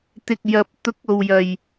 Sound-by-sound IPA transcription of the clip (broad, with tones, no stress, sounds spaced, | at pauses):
t̪ ɪ˨ k̚ j ɐ˨ p̚ t̪ ʊ˨˥ k̚ o˨ w j ɐ˨ j